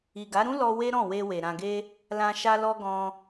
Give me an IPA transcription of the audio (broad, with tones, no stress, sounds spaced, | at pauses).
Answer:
i˨ ɡ a˨˦ ɾ ũ˦ l ɔ˧ w e˦ ɾ ɔ̃˦˨ w e˧ w e˨ ɾ ã˨ ɡ e˧ | l ã˧ ʃ a˧ l ɔ˧ ɡ ɔ̃˧